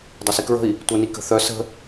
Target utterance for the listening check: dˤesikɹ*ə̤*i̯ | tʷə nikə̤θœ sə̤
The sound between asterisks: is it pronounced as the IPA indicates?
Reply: yes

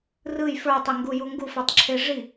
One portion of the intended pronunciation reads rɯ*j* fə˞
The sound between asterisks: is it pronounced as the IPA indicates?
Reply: yes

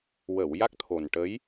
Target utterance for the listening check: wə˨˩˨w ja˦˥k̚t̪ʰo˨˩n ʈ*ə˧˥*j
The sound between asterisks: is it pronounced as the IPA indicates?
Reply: yes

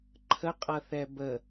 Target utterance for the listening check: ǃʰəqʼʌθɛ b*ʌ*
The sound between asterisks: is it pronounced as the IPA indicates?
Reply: no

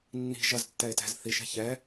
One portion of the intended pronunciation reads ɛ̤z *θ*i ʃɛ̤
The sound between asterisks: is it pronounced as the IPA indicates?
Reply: yes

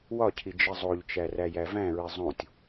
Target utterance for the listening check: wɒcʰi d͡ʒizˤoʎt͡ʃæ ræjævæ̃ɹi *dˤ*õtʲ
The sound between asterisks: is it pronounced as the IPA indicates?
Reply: no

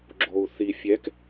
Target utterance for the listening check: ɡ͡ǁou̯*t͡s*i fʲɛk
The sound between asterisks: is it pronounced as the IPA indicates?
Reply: no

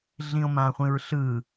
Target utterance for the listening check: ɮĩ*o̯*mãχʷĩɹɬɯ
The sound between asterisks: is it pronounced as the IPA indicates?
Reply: yes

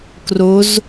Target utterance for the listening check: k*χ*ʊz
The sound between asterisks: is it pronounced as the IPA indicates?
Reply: no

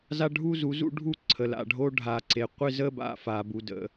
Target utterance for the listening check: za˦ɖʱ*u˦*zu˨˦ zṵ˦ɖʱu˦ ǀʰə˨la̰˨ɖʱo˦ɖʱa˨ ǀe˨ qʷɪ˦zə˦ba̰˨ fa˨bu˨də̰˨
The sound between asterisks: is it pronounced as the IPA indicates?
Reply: yes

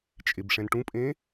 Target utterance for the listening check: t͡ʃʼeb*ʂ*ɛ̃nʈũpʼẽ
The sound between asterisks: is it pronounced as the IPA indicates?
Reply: yes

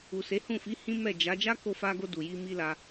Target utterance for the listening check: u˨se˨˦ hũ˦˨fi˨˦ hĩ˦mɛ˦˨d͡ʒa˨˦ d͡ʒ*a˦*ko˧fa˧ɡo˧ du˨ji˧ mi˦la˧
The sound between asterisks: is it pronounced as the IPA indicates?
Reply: yes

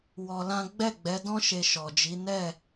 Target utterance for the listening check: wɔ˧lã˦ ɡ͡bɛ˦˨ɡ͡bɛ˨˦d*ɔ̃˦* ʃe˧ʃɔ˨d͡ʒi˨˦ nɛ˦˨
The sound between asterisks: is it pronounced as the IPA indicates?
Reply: yes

